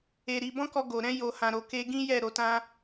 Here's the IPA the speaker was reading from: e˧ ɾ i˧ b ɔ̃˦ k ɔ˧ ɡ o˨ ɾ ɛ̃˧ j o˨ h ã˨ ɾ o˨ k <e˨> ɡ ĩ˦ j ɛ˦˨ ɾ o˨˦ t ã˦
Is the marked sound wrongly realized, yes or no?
yes